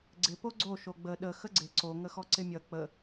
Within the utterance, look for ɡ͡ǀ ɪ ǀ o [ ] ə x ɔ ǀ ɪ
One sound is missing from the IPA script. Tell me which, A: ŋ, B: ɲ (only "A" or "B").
A